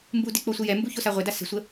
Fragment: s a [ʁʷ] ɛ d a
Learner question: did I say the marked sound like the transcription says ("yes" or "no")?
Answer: yes